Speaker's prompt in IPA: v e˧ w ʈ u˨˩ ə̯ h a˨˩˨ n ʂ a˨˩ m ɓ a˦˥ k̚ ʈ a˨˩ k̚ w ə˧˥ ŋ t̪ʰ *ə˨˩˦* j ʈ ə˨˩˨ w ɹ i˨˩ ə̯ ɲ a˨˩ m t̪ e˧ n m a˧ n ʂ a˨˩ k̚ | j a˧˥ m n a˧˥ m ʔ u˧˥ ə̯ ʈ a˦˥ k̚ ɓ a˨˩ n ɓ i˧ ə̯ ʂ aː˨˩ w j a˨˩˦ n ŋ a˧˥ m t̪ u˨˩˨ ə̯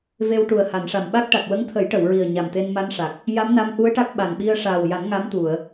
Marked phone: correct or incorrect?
correct